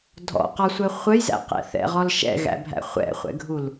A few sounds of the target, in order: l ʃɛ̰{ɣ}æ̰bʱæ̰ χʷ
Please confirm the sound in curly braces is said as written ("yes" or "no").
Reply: yes